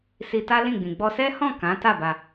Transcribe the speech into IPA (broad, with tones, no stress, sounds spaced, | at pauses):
s i˧ t a˦ l ĩ˦˨ ɡ͡b ĩ˨ ɡ͡b ɔ˧ s ɛ˦ h ɔ̃˦˨ k ã˨˦ t a˦˨ b a˧